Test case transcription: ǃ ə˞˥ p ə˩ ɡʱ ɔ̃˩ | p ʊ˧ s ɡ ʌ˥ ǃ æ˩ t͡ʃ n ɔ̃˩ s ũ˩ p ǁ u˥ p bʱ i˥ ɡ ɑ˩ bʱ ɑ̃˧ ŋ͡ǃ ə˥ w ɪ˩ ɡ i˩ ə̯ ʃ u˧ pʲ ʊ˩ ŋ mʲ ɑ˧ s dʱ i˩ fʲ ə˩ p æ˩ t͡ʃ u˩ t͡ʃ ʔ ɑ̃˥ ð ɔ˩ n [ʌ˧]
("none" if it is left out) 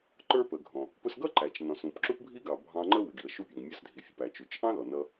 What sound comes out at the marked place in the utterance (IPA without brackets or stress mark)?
ʌ˧